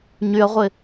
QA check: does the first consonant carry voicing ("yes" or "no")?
yes